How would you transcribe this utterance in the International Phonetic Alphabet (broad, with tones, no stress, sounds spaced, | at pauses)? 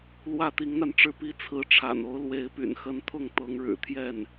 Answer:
l w ä˥˩ t̪ i˧˥ ŋ n̪ a˧ n ʈ͡ʂ ɻ̩˥˩ p i˥ t͡sʰ ɹ̩˧˥ ʈ͡ʂʰ a̰˨˩ n o˧˥ ʊ̯ l w e˧˥ ɪ̯ p y̰˨˩ n x ə˧˥ n t̪ʰ ʊ˥˩ ŋ t̪ ɤ˧˥ ŋ ɻ ɻ̩˨˩ t̪ʰ j ɛ˥˩ n